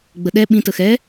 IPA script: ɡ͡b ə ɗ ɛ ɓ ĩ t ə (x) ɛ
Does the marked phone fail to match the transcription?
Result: no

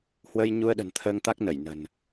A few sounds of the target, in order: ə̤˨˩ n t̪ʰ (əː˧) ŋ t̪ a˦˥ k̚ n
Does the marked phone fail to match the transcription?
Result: no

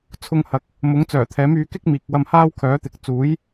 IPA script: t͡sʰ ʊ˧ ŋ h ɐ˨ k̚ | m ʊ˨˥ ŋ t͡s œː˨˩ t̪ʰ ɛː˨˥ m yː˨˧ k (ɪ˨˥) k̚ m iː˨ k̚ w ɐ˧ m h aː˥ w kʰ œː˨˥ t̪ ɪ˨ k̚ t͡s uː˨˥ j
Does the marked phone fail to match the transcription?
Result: yes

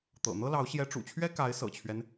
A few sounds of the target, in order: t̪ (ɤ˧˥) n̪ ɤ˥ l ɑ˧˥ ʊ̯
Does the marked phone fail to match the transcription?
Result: yes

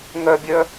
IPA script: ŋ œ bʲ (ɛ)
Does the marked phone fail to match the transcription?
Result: yes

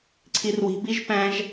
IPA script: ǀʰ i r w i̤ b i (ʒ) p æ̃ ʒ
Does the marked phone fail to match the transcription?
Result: no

